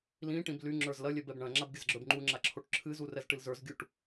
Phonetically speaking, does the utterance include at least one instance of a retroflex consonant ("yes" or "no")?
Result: yes